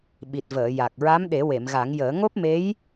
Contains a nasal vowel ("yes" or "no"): no